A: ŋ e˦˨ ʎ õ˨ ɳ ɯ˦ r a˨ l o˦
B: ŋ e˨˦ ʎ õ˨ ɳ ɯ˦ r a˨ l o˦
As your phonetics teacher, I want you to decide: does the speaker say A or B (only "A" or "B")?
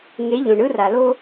B